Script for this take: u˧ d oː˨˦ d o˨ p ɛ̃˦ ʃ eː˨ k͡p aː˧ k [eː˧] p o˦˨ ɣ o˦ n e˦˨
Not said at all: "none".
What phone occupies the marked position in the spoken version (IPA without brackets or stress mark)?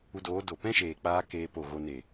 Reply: eː˦